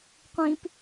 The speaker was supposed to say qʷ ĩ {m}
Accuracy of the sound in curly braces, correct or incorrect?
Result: incorrect